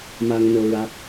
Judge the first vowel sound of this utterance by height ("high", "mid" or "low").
low